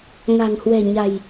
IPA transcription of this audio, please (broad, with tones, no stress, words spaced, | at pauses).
ŋa̤˨˩ŋhwɛ̤˨˩ ɲa̤˨˩j